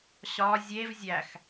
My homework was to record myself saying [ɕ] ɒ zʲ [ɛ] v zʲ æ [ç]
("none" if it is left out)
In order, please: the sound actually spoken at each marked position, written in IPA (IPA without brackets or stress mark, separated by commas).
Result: ɕ, e, x